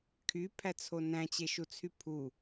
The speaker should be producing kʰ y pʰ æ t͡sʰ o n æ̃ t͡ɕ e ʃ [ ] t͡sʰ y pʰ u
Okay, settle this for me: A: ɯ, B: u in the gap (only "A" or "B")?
B